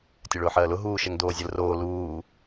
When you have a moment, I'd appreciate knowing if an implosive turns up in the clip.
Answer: no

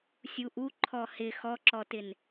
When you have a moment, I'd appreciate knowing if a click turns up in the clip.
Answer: yes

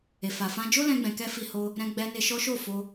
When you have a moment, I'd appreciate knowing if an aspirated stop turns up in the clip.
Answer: no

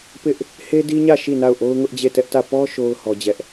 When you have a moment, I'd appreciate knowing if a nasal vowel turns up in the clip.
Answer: no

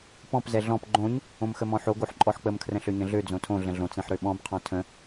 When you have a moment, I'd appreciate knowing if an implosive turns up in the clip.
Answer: yes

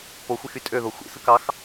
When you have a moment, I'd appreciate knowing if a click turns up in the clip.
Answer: no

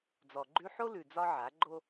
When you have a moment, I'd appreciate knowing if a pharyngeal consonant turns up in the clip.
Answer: yes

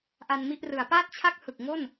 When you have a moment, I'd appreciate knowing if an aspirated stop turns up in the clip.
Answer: yes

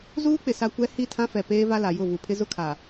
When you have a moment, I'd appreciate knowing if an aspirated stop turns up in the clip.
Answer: yes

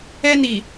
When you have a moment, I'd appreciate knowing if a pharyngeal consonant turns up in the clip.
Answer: no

